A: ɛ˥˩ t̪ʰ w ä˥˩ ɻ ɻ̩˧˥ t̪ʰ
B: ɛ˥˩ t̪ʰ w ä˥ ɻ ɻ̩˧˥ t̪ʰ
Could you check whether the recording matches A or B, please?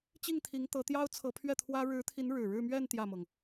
B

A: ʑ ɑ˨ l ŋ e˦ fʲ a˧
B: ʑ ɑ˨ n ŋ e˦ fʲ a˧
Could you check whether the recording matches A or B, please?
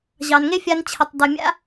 B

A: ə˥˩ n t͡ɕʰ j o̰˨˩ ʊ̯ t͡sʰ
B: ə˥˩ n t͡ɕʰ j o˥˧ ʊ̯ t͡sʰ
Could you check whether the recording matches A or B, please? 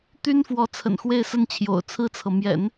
A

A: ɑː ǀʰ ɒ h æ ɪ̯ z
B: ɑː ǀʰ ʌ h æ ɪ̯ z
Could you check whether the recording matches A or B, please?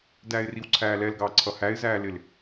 B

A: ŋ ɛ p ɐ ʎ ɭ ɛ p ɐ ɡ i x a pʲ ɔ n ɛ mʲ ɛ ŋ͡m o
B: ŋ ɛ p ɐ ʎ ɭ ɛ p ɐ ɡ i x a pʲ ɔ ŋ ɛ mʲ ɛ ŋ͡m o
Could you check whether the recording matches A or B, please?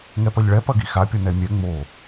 A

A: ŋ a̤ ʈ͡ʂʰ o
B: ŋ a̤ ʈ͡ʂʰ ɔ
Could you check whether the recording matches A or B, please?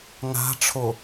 A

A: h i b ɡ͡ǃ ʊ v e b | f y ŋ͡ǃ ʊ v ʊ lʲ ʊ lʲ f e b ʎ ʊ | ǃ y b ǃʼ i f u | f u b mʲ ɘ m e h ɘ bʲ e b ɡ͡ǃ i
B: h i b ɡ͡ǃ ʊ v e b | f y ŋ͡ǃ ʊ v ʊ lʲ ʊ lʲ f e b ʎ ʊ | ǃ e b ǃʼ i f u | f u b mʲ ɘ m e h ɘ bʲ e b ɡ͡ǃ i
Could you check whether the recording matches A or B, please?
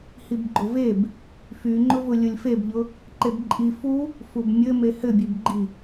B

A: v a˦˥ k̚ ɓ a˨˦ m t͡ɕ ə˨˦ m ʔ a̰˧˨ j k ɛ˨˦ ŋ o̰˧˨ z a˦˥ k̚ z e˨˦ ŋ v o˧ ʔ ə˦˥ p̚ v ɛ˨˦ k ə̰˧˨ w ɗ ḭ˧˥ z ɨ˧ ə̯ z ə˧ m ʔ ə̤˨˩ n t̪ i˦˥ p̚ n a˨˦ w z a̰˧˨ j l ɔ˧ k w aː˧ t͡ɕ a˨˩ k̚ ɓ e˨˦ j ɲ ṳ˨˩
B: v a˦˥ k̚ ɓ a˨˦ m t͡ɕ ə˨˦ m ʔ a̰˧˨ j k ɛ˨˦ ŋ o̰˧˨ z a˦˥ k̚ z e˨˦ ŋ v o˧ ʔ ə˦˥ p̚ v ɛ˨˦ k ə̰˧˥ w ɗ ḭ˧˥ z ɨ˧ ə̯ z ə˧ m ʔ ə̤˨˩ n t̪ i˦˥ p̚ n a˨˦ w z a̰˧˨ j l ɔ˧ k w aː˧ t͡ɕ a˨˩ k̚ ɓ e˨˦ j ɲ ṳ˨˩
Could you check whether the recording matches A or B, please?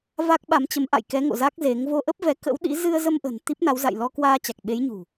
B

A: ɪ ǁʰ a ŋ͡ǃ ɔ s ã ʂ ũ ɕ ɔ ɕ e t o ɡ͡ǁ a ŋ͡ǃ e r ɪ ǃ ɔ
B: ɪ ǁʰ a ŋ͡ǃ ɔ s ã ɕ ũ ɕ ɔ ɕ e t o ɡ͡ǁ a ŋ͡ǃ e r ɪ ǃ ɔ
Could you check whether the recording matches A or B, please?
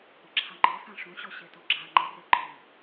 A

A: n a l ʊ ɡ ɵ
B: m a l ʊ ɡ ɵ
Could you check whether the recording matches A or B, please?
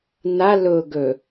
A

